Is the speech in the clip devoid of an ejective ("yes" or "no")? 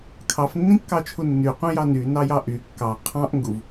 yes